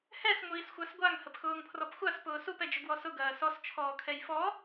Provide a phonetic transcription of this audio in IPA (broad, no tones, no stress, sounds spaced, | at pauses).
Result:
h ɛ s ŋʷ iː s xʷ a s ɡʷ a ŋ h ə p x ʊː ŋ pʰ r ɔ p xʷ a s p ʊː s u p ɛ d͡ʒ ʊ ɡ w ɔ s ʊ ɡ ɐː s ɔ s t͡ʃʰ ɔː kʰ ɛ j f ɔ